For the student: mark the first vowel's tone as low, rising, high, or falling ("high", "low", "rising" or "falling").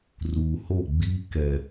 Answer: low